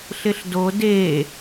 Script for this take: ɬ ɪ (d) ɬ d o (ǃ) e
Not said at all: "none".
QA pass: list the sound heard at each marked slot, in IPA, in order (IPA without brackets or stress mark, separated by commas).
none, d